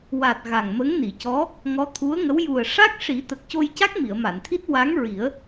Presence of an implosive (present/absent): absent